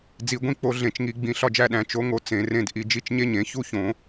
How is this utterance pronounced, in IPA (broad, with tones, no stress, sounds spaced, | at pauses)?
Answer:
d͡z i˧˩˧ ɡʷ ĩ˧˥˧ k͡p o˧˥˧ ɮ ẽ˧˩˧ t͡ʃ ŋ i˧˩˧ ɡ͡b ĩ˧˩˧ ɬ ɒ˥˨ d͡ʒ æ˥˨ ɗ æ̃˧˩˧ t͡ʃ o˩˥ ŋ o˩˥ t͡s ẽ˧˩˧ r ẽ˧˥˧ d ʔ i˧˩˧ d͡ʒ i˧˥˧ t͡ʃ ɲ e˥˨ ɲ ẽ˧˩˧ ç u˥˨ ç õ˧˩˧